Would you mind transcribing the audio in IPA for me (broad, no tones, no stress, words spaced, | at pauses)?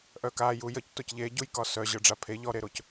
ʔœka jujəc tocʎeɟuj kɒsœ ʑə˞ɖ͡ʐapʰe ʎɔɾeɾoc